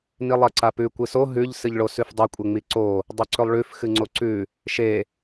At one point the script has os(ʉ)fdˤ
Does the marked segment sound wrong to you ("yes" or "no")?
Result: no